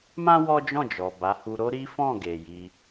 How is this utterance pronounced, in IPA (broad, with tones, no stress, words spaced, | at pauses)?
mã˦ wɔ˦d͡ʒɔ̃˦˨d͡ʒɔ˨ ba˨˦hu˧ ɾo˦ɾi˦ fɔ̃˦˨ɡe˨ji˧